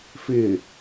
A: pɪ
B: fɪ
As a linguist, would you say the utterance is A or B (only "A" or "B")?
B